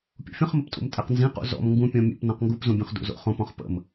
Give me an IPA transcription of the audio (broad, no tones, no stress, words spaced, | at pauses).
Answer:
pʲṵfʲə̃χməptʼṵm tʼɛqnzĩqṵ zɔ̰m ŋɡũpʲɔ̃ mʲṵp nɔ̃qŋɡupzũbʲõχ dṵzo̰χõpɔ̃χ pə̰m